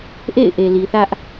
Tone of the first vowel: falling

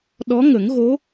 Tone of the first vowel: rising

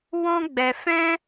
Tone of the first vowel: high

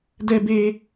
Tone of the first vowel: high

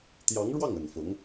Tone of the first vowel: rising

